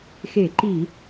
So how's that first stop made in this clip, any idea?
click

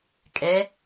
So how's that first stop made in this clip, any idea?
ejective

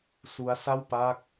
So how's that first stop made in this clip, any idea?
plain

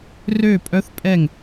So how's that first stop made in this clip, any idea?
ejective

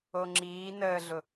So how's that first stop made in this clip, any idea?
click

